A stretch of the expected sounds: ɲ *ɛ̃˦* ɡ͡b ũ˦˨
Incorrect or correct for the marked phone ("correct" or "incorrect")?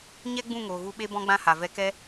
incorrect